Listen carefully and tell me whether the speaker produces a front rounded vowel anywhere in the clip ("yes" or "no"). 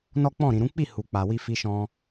no